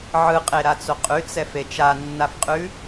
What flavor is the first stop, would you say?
ejective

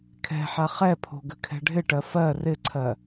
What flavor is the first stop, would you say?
aspirated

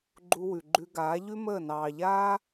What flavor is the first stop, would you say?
click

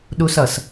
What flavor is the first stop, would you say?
implosive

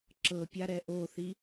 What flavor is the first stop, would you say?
click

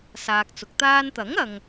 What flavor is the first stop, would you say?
plain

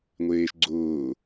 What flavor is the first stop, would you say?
click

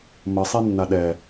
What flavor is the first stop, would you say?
implosive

